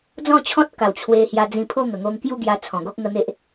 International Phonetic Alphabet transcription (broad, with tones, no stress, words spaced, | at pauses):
d͡zɔ̃˥˧t͡ɕʰɔ̃˦t̚ka˨˩w t͡ɕʰwe˧hja˧d͡zĩ˧pʰo˥˧ ŋə˨˩ŋo˧ŋkju˥˧ ɡja˧ t͡sʰɔ̃˨˩ɡo˦k̚ ŋə˧ n̪e˦ʔ